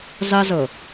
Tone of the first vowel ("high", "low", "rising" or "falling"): high